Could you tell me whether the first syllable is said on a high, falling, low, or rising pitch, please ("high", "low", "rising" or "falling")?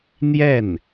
falling